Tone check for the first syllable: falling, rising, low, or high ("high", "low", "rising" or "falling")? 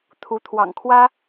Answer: rising